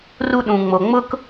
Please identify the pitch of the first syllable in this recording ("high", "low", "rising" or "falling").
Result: high